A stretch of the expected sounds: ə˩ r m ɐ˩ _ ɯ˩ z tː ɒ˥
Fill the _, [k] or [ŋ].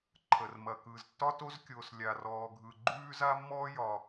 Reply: k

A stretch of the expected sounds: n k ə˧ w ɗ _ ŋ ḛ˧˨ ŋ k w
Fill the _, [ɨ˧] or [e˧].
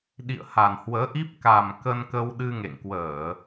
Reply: ɨ˧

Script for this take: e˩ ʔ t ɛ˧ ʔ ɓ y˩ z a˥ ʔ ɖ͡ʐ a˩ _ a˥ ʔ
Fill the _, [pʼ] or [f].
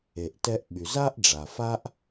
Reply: f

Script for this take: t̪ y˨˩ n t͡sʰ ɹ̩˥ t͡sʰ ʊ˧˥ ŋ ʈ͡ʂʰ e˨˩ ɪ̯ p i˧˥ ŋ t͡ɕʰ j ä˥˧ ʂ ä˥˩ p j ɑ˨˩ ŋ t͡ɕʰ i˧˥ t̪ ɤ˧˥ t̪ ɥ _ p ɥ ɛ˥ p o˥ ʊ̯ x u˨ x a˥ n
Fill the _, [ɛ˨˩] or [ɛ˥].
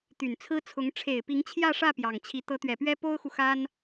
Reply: ɛ˨˩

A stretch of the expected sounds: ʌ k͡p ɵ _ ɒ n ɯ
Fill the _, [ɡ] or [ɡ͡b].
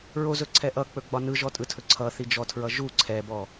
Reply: ɡ͡b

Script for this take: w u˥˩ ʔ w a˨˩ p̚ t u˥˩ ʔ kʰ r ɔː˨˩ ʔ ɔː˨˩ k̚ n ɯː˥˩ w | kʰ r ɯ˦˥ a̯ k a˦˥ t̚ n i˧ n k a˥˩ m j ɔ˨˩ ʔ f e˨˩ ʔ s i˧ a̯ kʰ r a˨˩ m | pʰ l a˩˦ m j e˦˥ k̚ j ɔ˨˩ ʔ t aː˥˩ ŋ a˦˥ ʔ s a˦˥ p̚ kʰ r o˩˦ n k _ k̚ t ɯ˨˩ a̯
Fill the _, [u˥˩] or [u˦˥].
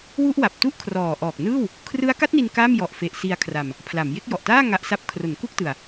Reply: u˥˩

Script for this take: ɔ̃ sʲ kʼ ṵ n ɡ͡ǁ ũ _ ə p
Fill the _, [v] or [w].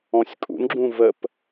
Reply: v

